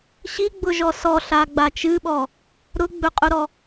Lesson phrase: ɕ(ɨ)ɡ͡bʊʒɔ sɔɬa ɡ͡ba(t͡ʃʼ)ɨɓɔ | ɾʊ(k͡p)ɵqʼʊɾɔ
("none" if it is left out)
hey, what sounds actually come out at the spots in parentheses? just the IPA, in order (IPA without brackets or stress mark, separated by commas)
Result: i, t͡ʃ, ɡ͡b